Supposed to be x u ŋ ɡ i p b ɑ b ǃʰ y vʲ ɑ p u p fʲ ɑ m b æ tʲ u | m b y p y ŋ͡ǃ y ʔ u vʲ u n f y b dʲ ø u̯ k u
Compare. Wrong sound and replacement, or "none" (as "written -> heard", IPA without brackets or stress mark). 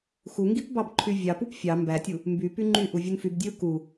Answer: none